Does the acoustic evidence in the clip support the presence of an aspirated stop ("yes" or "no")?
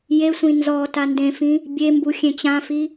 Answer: no